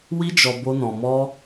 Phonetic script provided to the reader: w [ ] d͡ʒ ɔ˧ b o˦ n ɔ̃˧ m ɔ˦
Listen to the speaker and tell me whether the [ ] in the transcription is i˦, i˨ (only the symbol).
i˦